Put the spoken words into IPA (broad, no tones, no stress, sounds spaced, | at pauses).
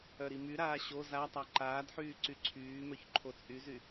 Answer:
œ ɾ i m y ɾ aː ɕ o z a tˤ a ǃ aː d ħ yː ǀ y ǀʰ yː m œ ç ǃʰ o t͡sʼ y z y